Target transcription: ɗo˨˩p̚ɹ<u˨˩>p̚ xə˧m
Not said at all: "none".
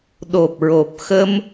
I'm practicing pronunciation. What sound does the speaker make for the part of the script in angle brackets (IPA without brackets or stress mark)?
o˨˩